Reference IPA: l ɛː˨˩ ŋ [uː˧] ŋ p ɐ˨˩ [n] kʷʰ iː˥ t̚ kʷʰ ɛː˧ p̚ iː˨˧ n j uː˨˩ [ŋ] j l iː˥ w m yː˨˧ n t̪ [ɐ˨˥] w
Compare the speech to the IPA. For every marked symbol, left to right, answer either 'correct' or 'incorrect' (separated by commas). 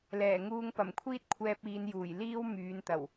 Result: correct, incorrect, incorrect, incorrect